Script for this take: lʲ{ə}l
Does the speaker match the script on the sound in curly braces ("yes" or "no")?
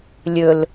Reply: no